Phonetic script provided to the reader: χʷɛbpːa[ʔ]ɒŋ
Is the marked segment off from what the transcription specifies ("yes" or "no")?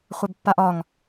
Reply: no